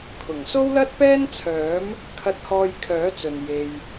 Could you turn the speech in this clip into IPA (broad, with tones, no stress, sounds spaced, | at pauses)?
kʰ ʊ˨˩ ŋ s o˥ w l ɐ˥ t̚ p ɛː˥ n t͡sʰ œː˨˥ m | kʰ ɐ˧ t̚ h ɔː˧ j kʰ œː˨˥ t͡s ɵ˨ n j e˧ j